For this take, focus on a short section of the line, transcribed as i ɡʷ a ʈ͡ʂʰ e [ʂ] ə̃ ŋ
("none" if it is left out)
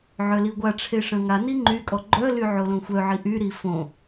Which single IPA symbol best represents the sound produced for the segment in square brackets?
ʂ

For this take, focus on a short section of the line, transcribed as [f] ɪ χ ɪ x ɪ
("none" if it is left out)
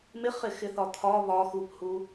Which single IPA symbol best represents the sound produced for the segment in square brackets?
m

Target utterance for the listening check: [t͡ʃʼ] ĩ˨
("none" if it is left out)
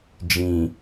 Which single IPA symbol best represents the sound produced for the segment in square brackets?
d͡ʒ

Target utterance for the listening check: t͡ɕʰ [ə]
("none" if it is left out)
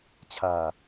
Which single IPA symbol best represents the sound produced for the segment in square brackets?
a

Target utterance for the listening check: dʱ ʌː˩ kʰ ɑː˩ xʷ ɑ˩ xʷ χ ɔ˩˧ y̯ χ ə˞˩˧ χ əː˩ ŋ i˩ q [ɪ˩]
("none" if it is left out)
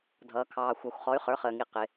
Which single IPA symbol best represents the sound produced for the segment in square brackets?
ɪ˩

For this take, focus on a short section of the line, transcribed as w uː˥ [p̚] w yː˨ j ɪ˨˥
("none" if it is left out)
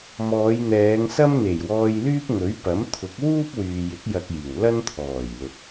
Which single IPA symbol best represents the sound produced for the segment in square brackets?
p̚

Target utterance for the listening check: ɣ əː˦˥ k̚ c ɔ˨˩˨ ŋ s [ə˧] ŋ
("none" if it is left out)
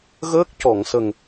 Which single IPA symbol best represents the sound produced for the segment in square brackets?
ə˨˩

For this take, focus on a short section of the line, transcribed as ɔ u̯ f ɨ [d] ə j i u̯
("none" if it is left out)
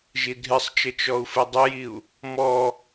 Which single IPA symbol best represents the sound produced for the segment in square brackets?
dˤ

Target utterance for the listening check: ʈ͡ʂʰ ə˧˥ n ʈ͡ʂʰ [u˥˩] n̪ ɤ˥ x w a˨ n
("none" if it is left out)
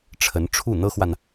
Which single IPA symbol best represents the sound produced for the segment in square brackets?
u˥˩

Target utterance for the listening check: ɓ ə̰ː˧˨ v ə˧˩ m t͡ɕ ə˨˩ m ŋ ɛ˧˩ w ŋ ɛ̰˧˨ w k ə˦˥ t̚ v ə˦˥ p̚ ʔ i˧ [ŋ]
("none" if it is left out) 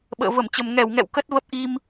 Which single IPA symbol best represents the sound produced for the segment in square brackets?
m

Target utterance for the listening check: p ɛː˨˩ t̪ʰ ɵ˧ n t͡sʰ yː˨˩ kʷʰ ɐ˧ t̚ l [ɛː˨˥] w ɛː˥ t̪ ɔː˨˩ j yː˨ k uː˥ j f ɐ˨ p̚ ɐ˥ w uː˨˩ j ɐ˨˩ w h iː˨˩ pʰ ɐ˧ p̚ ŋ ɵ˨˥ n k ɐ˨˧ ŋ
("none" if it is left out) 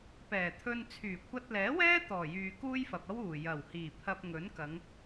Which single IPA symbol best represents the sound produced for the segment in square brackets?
ɛː˨˥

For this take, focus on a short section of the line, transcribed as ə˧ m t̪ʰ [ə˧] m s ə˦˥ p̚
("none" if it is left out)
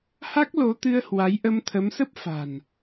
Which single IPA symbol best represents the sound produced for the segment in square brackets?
ə˨˦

